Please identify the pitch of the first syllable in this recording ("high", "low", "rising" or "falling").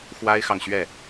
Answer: high